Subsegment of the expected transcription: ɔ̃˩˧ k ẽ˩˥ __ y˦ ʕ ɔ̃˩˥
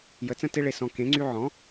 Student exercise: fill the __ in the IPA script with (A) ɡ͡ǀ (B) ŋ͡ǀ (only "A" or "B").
B